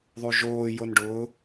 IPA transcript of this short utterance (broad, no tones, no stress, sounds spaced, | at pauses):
ðˤ u ʒ oː j o n ɖ ʊː